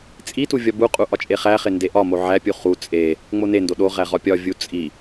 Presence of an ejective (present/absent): present